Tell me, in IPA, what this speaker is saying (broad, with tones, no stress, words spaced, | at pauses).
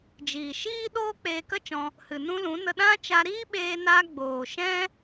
d͡ʒiː˨ʃiː˦ ɗoː˦k͡peː˧kə˦t͡ʃɔ̃˧ | hɨ˨nũ˦lũ˨˦ nə˧ɗã˦ t͡ʃa˧ɾiː˦ɓeː˧naː˧ ɡ͡boː˨ʃɛ̃˦